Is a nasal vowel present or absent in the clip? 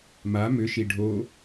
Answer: absent